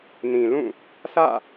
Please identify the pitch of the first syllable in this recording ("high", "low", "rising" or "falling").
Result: low